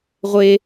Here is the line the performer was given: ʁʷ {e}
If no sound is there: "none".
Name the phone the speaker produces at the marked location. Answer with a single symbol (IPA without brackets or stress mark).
e